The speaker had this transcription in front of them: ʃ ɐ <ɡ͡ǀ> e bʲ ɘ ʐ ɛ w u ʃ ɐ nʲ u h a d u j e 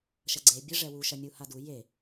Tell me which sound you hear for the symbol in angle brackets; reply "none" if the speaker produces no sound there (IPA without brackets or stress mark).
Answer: ɡ͡ǀ